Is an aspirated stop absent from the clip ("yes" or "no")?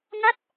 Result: yes